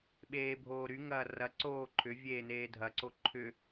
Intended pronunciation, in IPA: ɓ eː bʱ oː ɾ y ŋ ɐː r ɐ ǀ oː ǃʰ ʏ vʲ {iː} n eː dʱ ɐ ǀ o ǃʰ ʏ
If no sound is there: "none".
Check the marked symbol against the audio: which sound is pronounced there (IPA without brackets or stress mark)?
eː